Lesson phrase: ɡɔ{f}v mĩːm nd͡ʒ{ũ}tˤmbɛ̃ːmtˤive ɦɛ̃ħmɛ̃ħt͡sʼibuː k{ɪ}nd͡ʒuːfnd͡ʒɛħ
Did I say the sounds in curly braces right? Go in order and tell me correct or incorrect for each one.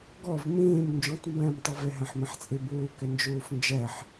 incorrect: none, correct, correct

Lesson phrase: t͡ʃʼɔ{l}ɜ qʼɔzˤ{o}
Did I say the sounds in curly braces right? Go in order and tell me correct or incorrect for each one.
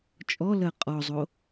correct, correct

